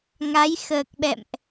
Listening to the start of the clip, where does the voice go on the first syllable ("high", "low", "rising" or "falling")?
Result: rising